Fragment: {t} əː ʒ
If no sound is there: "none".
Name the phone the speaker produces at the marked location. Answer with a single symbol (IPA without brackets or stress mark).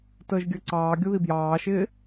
t